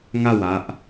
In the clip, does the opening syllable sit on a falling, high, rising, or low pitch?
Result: falling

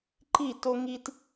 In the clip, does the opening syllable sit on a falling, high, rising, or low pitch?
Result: falling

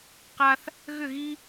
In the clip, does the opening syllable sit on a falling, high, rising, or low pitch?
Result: high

